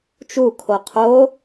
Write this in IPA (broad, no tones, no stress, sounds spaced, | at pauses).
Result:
t͡ʃ u kʰ o qʰ o